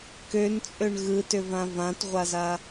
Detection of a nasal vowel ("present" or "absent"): present